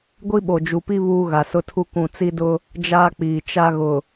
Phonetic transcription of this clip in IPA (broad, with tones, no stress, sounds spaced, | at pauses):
ɡʷ i˦ ɓ o˨ d͡ʒ u˨ p i˦ β uː˦ ɣ a˨ s ʊ˦ tʰ u˦ k ũ˨ t͡s i˦ d ʊ˦ | d͡ʒ aː˦ k͡p iː˨ t͡ʃ a˦ ɣ ʊ˨